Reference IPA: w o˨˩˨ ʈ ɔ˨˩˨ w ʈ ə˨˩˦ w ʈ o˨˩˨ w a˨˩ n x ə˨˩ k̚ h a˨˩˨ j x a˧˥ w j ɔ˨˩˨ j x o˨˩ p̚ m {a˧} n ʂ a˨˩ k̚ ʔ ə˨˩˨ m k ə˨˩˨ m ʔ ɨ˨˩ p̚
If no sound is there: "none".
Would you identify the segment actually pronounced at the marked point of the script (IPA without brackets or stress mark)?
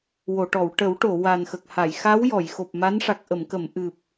a˧˥